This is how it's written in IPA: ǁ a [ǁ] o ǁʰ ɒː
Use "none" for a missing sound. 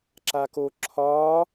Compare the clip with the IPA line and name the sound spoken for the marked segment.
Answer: k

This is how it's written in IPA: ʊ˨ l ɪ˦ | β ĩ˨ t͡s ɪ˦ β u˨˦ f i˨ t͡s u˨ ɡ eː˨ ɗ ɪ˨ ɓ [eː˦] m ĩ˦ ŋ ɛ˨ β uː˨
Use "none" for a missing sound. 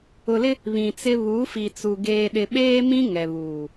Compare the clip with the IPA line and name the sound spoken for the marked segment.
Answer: eː˦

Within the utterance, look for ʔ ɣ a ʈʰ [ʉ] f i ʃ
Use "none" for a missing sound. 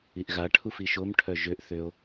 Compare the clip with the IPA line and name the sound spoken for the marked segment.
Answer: u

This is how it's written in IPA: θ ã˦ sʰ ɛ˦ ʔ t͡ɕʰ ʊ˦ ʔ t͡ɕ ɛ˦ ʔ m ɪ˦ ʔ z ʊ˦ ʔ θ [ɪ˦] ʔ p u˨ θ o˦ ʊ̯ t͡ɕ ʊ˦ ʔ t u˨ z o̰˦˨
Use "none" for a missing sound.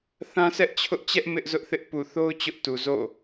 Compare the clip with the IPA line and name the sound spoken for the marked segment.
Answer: ɪ˦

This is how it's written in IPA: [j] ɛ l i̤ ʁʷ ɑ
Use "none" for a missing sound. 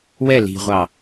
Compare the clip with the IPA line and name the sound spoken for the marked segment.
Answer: w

